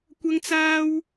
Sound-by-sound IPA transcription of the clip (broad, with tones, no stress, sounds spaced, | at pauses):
kʷ ɐ˥ ŋ t͡s aː˥ w